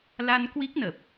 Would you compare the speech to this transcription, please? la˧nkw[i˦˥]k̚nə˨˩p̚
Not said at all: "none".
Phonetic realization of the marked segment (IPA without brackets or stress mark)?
i˦˥